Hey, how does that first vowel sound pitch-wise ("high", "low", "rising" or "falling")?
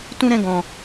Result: high